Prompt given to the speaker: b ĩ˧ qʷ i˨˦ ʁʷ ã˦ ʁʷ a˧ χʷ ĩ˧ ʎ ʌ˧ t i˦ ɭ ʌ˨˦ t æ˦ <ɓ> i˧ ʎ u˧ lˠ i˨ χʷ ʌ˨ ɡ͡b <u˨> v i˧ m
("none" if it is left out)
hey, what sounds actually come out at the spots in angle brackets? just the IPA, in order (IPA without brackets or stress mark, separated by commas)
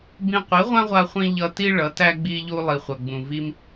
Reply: ɡ͡b, ũ˨